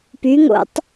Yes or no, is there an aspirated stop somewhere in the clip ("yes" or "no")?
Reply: no